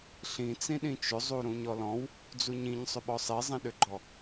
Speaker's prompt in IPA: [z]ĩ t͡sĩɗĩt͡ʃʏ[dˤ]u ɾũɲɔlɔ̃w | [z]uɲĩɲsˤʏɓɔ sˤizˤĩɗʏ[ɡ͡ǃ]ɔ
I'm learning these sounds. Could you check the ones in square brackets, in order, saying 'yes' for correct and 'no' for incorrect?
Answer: no, no, no, yes

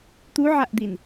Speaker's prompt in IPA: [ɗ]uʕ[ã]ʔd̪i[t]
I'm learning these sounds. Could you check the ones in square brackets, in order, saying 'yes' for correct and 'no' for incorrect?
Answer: no, no, no

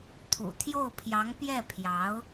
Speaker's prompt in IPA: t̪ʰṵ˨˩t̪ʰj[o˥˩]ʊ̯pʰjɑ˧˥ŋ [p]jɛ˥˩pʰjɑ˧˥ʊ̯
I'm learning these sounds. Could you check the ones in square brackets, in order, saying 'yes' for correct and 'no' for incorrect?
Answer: yes, yes

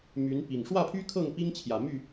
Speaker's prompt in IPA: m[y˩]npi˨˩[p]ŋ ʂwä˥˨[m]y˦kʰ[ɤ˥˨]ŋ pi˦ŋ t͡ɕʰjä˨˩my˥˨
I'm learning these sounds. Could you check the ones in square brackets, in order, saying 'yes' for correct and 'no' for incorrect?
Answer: no, no, no, yes

